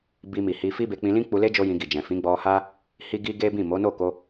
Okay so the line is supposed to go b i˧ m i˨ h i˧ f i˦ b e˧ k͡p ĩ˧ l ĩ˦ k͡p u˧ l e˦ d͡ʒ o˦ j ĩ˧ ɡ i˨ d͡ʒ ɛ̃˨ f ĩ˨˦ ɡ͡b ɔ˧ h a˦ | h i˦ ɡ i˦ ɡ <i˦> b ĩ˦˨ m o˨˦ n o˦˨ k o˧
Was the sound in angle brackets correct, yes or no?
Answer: no